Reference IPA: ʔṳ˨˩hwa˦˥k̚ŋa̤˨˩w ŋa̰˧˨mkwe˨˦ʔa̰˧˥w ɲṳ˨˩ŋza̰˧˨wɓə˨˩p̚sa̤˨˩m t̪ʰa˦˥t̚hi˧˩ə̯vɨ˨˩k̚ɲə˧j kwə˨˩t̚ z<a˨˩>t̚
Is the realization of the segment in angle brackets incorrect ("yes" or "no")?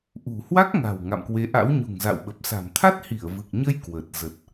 yes